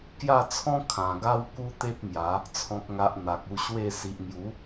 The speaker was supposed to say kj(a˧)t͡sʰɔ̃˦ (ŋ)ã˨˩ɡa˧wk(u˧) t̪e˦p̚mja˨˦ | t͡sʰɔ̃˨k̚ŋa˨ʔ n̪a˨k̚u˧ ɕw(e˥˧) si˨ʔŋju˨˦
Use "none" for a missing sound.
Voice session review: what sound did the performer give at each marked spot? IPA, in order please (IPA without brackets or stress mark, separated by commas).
a˥˧, kʰ, u˧, e˥˧